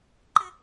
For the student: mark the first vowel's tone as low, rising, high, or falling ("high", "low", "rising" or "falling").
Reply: high